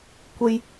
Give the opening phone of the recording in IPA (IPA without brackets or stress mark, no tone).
kʷ